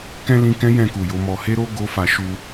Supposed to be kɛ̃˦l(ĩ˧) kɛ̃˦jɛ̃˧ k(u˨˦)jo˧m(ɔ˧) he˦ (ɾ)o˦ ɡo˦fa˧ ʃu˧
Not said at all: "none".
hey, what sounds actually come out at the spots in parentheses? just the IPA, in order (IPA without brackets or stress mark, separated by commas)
ĩ˧, u˨, ɔ˧, ɾ